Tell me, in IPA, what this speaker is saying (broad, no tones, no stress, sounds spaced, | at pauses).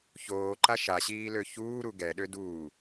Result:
ç oː ǃ a ʃ a ɕ iː l ø ç uː ɾ u ɡ ɛ ɗ ø d uː